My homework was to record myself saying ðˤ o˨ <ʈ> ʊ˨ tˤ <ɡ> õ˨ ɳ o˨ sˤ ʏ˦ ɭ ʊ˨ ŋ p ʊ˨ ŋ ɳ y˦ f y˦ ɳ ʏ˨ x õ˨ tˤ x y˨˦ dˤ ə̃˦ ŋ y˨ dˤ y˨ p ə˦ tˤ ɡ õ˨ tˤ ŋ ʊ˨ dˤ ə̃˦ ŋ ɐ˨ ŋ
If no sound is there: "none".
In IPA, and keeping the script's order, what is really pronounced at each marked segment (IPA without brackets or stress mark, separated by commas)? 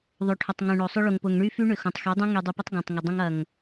ʈʰ, ŋ